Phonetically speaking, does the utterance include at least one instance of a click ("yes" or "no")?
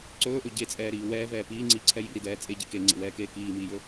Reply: yes